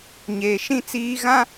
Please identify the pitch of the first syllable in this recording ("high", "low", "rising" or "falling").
low